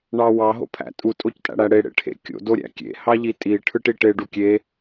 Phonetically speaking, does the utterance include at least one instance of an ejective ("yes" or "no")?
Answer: yes